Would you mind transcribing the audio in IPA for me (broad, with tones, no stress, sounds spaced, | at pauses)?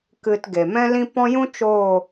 k ɨ˧ t ɡ e˨ m ɛ̃˦ l ĩ˦ p ɔ̃˦ j ũ˦ t͡ʃ oː˦˨